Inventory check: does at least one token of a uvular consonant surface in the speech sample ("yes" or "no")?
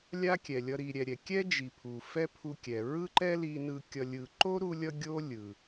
no